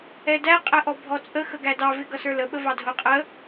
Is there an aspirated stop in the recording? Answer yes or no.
no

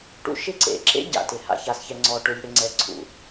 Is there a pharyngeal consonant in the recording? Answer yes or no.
no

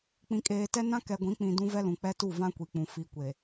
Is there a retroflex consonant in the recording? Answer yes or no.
no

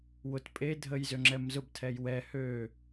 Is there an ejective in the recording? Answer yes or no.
yes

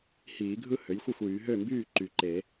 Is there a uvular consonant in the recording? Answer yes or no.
no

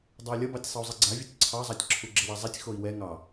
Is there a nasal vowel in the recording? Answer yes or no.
no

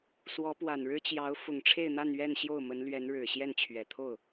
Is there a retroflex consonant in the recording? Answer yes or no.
yes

